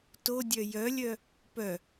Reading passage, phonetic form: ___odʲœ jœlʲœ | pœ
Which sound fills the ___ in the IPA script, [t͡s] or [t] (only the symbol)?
t